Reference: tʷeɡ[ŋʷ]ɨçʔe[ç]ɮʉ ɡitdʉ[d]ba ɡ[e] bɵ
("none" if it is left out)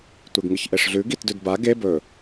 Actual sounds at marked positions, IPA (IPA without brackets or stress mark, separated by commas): ŋ, ʂ, d, e